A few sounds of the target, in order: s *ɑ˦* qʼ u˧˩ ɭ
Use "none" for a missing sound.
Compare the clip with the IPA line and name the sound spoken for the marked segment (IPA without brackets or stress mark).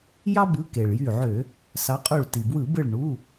ɑ˨˦